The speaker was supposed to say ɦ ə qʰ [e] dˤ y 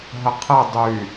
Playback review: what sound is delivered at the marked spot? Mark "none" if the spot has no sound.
e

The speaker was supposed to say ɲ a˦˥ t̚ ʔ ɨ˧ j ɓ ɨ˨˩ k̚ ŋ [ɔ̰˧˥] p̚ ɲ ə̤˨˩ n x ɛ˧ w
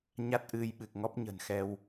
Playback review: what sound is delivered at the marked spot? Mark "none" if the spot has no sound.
ɔ˦˥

